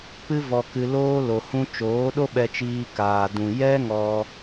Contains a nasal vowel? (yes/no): yes